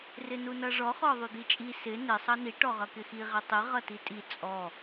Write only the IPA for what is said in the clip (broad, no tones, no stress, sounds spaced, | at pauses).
r ɪ n u n ʌ ʐ ɔ χ ɔ ðˤ u d̪ i t͡ʃʼ i s ɪ n ɪ sˤ ʌ n i ʈ ɔ ʁ ʌ k ɪ x i ʁ ɪ tˤ i ʁ ʌ t i tʼ i t͡sʼ ɔ